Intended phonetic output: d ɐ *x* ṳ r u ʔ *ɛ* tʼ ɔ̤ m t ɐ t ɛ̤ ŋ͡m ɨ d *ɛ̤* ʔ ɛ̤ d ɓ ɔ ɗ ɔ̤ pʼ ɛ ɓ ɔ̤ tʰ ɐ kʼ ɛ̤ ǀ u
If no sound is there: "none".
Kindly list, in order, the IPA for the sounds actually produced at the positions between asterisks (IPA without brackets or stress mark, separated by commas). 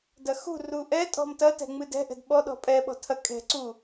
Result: x, ɛ, ɛ̤